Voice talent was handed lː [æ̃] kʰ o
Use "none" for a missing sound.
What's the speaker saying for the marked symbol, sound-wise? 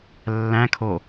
æ̃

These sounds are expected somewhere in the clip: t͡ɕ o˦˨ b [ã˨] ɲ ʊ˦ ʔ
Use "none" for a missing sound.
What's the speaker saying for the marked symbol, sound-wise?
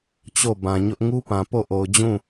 ã˨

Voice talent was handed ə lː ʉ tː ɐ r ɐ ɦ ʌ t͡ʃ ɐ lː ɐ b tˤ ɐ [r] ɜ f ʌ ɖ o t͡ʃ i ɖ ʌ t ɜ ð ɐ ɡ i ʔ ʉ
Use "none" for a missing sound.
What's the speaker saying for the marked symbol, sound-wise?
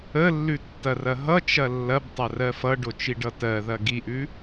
r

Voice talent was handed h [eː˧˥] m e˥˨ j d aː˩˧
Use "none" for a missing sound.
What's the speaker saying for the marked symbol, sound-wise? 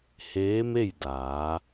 eː˧˥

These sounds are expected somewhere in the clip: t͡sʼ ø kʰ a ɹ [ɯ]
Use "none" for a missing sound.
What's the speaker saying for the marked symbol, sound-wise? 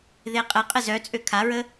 ə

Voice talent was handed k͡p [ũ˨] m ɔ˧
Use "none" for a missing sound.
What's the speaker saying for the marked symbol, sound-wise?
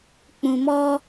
ũ˨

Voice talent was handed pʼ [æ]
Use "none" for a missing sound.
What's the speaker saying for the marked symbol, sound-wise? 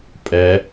ɛ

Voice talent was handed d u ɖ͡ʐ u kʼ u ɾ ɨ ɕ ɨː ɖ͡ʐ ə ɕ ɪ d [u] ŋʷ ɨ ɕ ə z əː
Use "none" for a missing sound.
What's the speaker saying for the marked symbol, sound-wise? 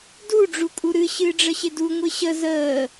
u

